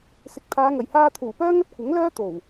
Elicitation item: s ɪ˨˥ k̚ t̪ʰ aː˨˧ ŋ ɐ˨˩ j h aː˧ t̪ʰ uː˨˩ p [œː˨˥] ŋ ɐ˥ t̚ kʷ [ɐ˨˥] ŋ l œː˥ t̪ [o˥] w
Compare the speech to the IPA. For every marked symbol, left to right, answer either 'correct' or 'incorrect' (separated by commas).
incorrect, correct, incorrect